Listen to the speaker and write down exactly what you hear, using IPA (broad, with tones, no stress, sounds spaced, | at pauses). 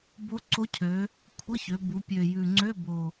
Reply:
b o˧˥ ǀ o˧˥ cʰ ø˩˧ | kʷʰ ə˧˥˧ ç ø˩˧ b u˩˧ pʲ ø˨˩ j ʉ˨˩ ŋ͡ǀ ø˧˥˧ b o˨˩